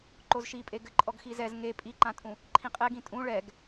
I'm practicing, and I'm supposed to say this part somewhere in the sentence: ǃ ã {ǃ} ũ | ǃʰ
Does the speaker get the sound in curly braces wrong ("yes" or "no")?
yes